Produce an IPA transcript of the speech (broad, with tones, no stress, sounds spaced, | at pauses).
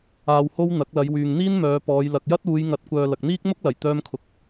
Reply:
aː˧ w h o˥ w n̪ ɐ˨˥ k̚ l ɐ˨˧ j w yː˨ ŋ n̪ iː˥ n m œː˨˧ p ɔː˨˧ j l ɐ˨ k̚ j ɐ˥ t̚ uː˨˧ j ŋ ɐ˨˥ t̚ kʷ œː˨ l ɐ˨ k̚ n̪ iː˥ k̚ m ʊ˥ k̚ l ɐ˨˩ j t̪ œː˧ m kʰ ʊ˨˥ k̚